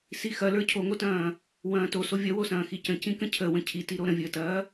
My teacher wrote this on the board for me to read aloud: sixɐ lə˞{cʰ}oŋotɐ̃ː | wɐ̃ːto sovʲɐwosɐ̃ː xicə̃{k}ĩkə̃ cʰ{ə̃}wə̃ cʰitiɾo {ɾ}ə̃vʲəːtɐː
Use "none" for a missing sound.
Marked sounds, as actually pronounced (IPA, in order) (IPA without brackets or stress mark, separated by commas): cʰ, c, ə, ɾ